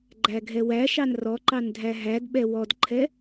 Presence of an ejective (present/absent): absent